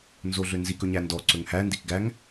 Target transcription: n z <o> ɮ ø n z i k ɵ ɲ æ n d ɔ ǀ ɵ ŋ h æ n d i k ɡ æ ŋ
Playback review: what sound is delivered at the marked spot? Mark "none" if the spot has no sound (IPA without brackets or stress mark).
o